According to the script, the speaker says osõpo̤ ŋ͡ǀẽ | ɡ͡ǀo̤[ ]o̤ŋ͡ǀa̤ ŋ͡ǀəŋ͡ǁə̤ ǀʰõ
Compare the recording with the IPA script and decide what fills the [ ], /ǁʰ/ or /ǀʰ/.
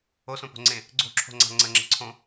ǁʰ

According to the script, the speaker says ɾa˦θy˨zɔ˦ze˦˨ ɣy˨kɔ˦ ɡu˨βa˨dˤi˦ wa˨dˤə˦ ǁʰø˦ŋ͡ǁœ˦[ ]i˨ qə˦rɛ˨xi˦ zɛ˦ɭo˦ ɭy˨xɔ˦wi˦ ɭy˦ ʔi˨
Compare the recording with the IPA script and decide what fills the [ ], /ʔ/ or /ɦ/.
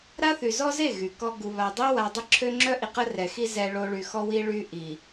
ʔ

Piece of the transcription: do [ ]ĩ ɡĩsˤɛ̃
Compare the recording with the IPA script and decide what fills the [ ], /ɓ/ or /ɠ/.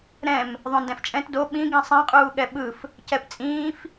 ɓ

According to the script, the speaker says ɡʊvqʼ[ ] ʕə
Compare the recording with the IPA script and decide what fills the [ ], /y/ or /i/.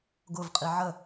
i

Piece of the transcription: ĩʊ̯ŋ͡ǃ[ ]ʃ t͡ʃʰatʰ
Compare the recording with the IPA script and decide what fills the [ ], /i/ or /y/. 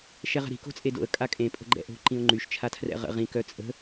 y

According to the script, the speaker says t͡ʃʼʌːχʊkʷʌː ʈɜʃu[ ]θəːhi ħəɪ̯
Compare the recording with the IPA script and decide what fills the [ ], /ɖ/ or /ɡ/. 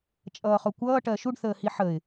ɖ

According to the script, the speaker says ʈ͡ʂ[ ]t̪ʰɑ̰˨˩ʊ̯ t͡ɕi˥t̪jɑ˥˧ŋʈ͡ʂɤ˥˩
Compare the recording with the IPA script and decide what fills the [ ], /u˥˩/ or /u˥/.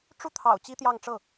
u˥˩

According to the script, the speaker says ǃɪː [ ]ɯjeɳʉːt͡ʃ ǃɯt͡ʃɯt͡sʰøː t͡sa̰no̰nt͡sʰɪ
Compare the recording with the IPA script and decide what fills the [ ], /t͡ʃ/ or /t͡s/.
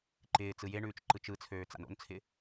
t͡s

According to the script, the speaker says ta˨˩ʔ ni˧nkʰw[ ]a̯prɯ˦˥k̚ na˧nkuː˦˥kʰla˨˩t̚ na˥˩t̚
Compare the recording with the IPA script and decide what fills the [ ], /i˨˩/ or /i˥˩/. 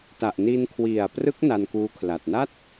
i˨˩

